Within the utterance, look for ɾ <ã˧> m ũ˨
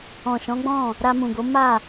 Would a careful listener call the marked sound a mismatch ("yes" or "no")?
yes